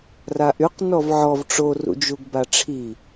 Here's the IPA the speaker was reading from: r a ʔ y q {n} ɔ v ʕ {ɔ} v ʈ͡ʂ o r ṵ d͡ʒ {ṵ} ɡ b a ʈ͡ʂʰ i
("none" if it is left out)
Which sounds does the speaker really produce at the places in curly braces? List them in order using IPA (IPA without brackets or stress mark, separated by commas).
n, ɔ, u